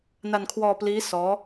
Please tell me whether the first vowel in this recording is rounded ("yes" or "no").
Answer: no